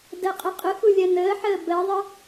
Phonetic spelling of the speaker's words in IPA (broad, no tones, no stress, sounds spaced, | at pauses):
d ɜ qʼ ə qʼ ʊ x u lʲ ɜ n əː ħ əː b ɜ ðˤ ə